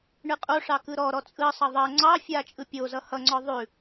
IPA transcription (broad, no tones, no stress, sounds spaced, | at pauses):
ɳ ɯ qʼ o ʂ ɑ k ɯ ɾ ɔ ɾ ɔ t͡sʼ ɯ sˤ ʌ ðˤ ʌ ŋ͡ǀ ɑ fʲ a t͡ʃʼ ɯ pʲ o z ʌ h ʌ ŋ͡ǀ ɔ ðˤ ʉ